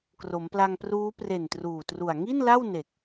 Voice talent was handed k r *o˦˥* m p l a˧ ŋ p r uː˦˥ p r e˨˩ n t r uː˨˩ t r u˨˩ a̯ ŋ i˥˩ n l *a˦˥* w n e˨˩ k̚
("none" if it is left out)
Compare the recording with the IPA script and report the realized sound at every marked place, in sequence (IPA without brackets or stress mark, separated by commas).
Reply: o˩˦, a˥˩